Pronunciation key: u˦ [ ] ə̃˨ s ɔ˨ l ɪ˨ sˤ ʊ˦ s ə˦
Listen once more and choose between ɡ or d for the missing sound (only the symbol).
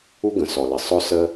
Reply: ɡ